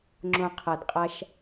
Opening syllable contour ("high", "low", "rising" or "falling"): low